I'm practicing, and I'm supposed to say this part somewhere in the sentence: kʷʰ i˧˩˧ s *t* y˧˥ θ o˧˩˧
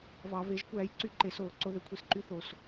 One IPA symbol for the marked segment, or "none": ǃ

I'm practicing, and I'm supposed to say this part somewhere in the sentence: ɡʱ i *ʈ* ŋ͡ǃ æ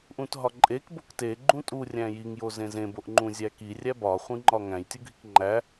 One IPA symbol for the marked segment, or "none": k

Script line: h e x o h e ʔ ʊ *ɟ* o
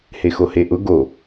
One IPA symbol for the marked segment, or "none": ɡ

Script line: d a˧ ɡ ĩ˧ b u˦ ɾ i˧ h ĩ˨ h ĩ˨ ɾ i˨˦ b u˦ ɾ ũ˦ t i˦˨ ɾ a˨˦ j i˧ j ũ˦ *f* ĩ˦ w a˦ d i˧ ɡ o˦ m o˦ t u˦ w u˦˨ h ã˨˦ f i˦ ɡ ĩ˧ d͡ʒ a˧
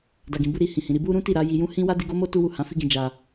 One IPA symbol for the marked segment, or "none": h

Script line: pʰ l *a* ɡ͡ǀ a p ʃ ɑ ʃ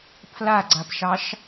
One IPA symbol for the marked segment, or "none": a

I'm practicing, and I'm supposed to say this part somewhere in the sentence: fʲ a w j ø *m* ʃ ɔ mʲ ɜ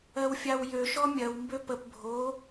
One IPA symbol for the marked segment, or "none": none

